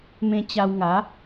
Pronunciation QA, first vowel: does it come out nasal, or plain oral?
nasal